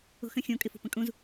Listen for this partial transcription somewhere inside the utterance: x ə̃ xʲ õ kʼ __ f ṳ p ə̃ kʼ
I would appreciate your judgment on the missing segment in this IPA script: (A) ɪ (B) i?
A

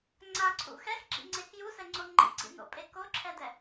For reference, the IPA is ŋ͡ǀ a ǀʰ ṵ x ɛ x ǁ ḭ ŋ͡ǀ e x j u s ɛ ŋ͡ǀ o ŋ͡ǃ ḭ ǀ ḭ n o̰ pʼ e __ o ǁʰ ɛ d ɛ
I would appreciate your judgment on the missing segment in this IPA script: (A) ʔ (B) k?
B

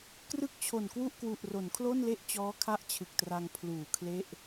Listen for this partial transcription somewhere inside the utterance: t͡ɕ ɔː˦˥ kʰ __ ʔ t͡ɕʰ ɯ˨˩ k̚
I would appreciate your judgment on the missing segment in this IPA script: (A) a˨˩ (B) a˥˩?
B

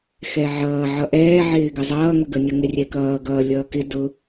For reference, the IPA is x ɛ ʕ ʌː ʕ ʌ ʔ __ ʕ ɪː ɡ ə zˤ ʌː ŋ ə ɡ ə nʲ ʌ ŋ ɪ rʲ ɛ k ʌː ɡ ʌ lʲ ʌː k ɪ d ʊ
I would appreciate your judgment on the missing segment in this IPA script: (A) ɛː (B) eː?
A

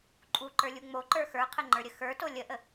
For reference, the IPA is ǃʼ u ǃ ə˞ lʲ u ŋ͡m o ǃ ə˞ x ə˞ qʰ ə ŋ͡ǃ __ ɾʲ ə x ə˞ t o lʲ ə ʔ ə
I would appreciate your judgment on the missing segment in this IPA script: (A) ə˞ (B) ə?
A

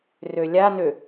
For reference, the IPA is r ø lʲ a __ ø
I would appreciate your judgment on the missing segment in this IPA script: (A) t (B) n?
B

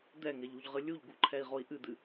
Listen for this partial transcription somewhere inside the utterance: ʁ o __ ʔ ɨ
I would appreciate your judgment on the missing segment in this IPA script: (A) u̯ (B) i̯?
B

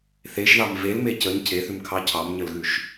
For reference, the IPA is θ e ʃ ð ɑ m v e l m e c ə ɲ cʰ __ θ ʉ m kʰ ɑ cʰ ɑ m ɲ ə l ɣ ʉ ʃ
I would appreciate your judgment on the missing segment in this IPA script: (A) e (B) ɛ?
A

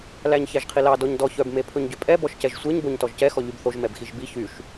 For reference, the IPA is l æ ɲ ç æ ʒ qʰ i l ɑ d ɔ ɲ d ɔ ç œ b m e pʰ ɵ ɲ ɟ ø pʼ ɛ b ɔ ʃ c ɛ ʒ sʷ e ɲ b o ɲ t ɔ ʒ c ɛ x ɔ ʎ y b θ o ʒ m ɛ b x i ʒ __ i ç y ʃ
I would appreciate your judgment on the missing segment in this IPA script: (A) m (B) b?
B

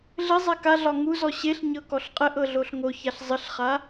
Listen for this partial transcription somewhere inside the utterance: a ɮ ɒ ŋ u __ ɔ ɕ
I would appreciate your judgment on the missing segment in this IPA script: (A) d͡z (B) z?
B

